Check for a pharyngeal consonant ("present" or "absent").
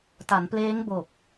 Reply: absent